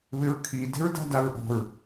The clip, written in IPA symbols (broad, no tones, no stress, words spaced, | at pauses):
βɪɹkʰi de̤ɹda̤daɹʔɔ̤ɹ